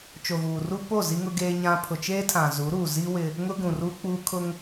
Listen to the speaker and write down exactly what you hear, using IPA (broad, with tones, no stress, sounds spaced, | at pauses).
t͡ʃ o˨ ɣ uː˨ r u˦ p o˦˨ z i˦ ŋ ʊ˦ ɡ eː˦ ɲ ã˦ pʰ ʊ˨ t͡ʃ eː˦ tʰ ã˨ z u˨˦ ɾ uː˨ z i˦ w ɪ˦ | ŋ ʊ˦ ɡ ũ˨ r u˦ k͡p uː˦ kʰ ʊ˦ ŋ